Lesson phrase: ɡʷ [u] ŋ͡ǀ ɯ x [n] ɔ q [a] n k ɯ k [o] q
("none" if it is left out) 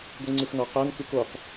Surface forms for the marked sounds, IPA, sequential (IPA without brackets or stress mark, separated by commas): ɯ, n, a, o